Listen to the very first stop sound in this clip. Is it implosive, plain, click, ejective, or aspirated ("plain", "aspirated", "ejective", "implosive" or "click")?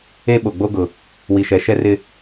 implosive